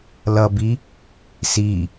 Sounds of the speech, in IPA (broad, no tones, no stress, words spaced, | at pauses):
lʌbi | si